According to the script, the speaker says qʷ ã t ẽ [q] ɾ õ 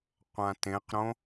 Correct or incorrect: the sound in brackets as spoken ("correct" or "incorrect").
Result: correct